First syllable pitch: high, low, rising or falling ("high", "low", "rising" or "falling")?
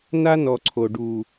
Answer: high